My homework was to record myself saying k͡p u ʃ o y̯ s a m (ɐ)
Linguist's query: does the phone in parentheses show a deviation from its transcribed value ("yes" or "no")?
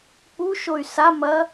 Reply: no